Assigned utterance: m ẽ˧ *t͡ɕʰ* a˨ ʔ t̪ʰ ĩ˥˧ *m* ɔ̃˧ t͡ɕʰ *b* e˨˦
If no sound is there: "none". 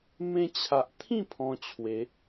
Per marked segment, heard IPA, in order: t͡ɕʰ, pʰ, w

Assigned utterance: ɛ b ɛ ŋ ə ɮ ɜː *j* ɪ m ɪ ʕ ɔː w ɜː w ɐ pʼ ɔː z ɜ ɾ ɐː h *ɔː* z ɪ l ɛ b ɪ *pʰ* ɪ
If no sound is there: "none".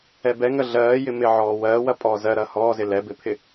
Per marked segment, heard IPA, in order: j, ɔː, pʰ

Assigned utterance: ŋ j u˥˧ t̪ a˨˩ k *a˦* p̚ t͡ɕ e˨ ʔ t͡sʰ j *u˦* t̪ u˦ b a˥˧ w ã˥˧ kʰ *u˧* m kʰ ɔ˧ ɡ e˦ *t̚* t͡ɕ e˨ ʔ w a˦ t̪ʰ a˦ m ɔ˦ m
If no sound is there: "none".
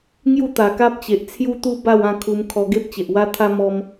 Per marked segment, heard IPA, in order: a˦, u˦, u˧, p̚

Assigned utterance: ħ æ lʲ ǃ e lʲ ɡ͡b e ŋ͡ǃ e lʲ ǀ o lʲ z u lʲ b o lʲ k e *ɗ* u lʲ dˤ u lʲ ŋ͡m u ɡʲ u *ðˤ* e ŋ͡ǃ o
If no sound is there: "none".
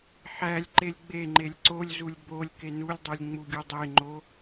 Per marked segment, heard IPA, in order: n, dˤ

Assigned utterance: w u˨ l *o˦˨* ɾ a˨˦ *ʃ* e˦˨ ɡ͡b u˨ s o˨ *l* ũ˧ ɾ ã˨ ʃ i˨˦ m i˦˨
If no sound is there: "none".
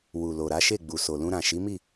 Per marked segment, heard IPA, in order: o˨, ʃ, l

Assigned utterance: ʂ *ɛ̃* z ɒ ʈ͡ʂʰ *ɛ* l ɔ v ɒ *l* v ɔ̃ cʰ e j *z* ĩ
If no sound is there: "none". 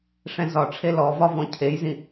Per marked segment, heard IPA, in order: ɛ̃, e, none, z

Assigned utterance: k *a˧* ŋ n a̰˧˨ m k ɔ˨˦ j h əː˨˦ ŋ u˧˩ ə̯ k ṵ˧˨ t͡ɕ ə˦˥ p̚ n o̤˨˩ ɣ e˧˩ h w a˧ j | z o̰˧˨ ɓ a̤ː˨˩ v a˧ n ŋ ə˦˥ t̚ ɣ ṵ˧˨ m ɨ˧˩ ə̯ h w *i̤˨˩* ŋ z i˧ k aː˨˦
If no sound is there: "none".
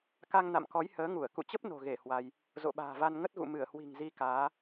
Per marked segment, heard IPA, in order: a˧, i̤˨˩

